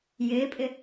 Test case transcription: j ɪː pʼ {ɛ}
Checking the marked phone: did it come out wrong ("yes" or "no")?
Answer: yes